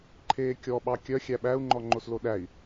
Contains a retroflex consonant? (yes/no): no